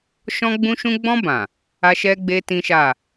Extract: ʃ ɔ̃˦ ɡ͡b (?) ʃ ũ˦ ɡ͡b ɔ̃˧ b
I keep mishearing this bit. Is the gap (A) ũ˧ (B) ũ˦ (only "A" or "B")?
B